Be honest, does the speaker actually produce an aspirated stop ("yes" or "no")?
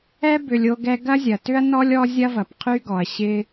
yes